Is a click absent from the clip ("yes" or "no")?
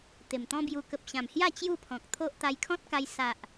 yes